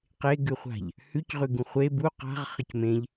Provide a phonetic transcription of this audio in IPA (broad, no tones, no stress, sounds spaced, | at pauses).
q e ɡ ʉ χʷ a̤ ʎ | h ʉ c ʁ ʉ ɡ ũ χʷ e b u q a̤ ʁ χ ə c m ẽ ʎ